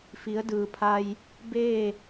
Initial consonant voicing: voiceless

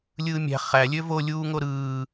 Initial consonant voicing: voiced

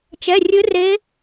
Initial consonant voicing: voiceless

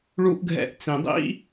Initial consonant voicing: voiced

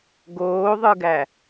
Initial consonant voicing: voiced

